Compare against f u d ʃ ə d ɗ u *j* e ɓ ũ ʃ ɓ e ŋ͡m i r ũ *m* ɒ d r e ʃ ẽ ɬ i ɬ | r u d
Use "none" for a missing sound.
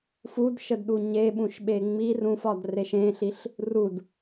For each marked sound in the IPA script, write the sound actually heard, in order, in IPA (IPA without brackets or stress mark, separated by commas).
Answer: ɲ, f